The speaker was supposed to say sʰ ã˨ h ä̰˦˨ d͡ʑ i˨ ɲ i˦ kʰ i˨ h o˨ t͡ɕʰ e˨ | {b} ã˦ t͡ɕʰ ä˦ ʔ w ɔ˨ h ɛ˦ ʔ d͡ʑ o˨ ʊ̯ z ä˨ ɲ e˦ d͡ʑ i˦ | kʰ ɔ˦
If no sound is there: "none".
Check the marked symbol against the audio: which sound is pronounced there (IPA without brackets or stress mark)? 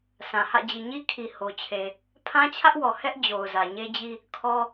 pʰ